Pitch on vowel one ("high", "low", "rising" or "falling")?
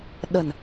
low